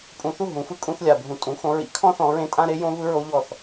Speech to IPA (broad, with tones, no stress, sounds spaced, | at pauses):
pʼ ũ˨ θ u˦˨ ɦ ũ˨ f ɯ˦ kʼ ũ˧ θ lʲ a˨ bʱ ũ˨ tʼ ũ˨˦ x õ˧ ɹ ḭ˧ kʰ ɔ̃˦ θ ɔ̃˧ ɹ ẽ˦ tʼ ã˦ ɾ e˦ j õ˦ v ɯ˦ ɹ o˦ ʎ ɔ˦˨ θ